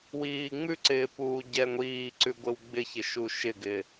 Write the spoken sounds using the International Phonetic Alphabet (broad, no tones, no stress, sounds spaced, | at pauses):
w iː ŋ͡m ʉ ǀ ɪː p uː ɟ ɛ ŋʷ iː ǀ ʉ ɡʷ ɪ w ɡ͡b ɪ ç ɪ ʃ u ʃ ɪ ɡ ɪ